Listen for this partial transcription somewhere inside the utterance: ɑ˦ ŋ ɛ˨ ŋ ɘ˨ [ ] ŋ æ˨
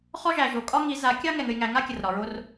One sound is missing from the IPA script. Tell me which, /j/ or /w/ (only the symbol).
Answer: j